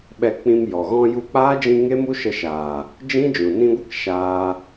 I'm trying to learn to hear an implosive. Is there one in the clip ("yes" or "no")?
yes